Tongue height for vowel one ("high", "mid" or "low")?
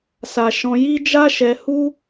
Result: low